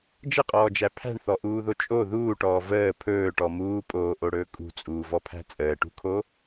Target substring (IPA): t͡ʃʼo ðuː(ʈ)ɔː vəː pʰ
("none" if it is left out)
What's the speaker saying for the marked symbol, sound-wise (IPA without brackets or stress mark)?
ʈ